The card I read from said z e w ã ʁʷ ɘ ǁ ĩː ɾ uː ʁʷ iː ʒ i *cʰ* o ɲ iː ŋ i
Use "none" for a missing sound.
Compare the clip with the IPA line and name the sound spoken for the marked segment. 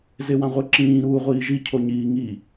cʰ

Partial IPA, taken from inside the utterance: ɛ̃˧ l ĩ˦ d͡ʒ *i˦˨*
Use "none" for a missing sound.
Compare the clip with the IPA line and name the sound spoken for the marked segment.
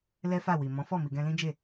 e˦˨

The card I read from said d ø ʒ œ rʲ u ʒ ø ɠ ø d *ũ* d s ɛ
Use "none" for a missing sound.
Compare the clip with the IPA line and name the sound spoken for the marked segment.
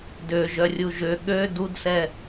u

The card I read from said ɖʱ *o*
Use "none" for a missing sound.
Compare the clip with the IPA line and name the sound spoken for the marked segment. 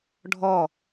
ɔ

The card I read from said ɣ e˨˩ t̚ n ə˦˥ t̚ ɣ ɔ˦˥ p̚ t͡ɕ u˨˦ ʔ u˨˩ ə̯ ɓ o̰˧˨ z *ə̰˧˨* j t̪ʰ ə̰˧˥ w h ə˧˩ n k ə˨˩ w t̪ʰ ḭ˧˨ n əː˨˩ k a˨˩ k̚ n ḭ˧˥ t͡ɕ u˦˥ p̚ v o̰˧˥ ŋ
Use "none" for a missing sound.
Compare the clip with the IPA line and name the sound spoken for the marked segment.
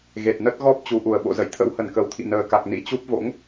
ə̰˧˨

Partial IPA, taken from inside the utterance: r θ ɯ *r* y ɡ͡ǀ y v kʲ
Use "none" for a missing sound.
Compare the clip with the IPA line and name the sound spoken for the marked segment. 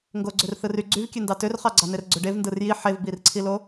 r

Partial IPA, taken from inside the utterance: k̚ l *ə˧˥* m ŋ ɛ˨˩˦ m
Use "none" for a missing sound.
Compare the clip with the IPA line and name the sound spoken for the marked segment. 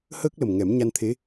ə˨˩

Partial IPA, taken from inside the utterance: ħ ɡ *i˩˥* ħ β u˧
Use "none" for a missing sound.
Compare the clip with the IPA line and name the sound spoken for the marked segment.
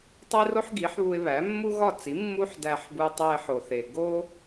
i˩˥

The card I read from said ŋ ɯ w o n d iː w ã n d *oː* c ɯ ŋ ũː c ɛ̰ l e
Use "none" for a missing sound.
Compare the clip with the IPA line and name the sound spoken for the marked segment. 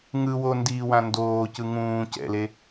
oː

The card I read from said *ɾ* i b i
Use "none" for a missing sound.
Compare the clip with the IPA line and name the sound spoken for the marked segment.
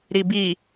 ɾ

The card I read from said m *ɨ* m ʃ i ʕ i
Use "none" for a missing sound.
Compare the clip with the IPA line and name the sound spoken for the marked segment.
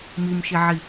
i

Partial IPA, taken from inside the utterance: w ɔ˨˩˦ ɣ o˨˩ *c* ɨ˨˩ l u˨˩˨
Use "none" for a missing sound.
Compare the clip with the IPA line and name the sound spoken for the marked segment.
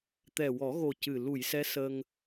c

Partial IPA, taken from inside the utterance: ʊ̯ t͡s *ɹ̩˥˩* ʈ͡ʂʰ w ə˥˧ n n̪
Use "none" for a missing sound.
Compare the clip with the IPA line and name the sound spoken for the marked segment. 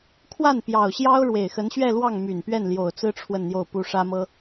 ɹ̩˥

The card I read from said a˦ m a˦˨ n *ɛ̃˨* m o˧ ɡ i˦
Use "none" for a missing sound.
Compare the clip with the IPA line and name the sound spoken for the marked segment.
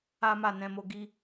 ɛ̃˧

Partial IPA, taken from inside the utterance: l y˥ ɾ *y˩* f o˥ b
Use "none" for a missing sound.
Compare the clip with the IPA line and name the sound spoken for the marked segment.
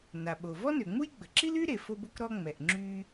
e˩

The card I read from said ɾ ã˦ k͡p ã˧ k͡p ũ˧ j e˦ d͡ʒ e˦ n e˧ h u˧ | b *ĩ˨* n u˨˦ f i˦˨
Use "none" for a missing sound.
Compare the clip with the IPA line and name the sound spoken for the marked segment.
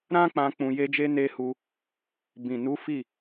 ĩ˨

